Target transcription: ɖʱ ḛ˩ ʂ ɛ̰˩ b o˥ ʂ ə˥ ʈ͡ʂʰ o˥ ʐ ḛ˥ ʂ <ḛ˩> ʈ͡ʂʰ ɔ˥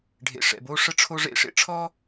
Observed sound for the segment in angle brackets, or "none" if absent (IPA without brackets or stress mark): ḛ˥